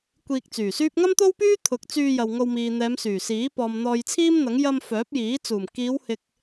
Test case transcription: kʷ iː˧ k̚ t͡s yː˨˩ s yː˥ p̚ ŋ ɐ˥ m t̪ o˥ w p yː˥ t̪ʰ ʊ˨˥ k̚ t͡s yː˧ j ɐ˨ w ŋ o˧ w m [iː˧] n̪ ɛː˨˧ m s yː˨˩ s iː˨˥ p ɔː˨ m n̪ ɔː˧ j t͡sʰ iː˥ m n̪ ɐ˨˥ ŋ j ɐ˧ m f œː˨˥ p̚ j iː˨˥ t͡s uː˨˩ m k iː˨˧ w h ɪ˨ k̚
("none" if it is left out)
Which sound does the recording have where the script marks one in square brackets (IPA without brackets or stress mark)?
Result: iː˨